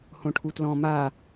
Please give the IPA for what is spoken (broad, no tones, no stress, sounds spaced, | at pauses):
h õ ʈʰ u t l ɔ̃ m a